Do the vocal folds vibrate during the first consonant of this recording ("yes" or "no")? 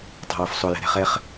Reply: no